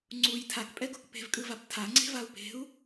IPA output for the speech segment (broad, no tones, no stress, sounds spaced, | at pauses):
ŋ͡ǀ u j tʰ a k pʼ ɛ ɡ o k p e̤ v kʼ ɯ v a p tʰ a ŋ͡ǀ e̤ v a u̯ p e̤ u̯